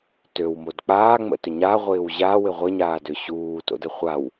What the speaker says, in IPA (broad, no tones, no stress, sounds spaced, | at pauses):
t ø w m o d k͡p aː ŋ͡m ə̰ t ʏ ɲ a ʁʷ ɪː w ʑ a w ɪ ʁʷ ɪ ɲ aː d ø ɕ uː t o̰ d ə χʷ a w